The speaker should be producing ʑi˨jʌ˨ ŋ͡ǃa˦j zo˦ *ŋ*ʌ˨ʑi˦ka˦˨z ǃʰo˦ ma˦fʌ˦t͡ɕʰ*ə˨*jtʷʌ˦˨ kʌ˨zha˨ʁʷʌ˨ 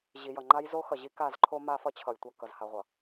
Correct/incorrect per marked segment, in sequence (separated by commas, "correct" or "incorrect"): incorrect, incorrect